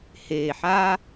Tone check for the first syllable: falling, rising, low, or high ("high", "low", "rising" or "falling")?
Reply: low